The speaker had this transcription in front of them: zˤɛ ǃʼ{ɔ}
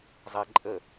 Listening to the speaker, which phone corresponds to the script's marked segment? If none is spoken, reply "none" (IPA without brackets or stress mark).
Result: ə